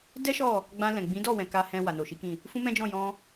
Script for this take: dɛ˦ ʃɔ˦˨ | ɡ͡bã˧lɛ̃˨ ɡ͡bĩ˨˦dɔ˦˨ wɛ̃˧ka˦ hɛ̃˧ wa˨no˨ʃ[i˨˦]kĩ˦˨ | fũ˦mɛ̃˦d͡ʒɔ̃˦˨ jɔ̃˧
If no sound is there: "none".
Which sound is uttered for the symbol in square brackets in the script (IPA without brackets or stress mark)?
i˨˦